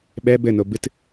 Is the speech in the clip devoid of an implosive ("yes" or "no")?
no